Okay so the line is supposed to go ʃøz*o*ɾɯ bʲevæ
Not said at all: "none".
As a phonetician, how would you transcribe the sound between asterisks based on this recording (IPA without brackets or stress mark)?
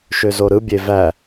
o